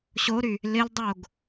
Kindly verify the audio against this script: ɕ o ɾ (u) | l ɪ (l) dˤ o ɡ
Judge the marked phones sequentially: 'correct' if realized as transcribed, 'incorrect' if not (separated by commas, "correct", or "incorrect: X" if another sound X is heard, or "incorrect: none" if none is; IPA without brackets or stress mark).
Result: incorrect: y, correct